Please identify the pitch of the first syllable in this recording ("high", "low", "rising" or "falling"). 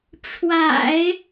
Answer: low